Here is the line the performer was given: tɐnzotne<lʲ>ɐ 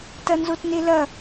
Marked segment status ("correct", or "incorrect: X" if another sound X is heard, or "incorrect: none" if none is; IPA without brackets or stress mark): incorrect: l